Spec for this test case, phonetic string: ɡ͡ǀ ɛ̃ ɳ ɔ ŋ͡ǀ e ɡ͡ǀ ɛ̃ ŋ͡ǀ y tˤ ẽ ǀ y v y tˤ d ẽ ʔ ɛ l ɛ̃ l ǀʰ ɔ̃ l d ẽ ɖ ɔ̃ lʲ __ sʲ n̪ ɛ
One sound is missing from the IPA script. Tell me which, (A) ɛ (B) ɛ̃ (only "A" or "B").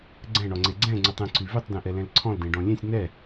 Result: B